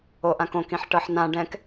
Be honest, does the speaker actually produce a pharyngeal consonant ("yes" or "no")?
yes